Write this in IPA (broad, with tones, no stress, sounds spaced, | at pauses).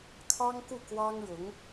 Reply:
kʰ ɑ˥ ŋ k u˥˩ k w ɑ˥ ŋ ɻ ʊ˧˥ ŋ